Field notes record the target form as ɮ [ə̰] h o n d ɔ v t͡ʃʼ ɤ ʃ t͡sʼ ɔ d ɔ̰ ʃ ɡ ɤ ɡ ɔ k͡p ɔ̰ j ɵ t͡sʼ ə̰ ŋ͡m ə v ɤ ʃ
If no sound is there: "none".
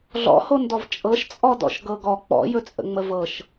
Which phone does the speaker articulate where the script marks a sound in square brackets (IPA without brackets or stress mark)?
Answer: ɔ̰